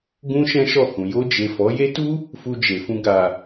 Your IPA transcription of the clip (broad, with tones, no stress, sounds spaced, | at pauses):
ɡ ũ˦ ʃ ɛ̃˦ ʃ ɔ˦˨ h ũ˨ j o˧ d͡ʒ e˨ f ɔ˨˦ j e˦ t u˦ | f u˧ d͡ʒ e˨ f ũ˧ ɡ a˨